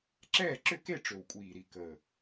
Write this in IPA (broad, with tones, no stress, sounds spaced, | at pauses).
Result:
ǁ ɛː˥˨ ǁ ʏ˥˨ k e˥˨ ʈ͡ʂ ø˨˩ w kʷʼ iː˨˩ ɾ i˨˩ k əː˨˩